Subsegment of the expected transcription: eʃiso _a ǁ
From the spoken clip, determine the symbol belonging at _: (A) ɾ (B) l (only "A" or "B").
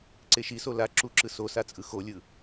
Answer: B